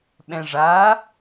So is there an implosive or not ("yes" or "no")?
yes